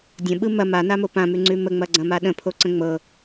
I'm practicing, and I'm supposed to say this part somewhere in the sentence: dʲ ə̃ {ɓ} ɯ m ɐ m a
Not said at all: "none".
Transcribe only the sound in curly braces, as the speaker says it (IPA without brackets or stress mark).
ɓ